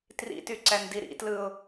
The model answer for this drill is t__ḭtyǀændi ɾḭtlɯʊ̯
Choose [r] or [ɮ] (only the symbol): r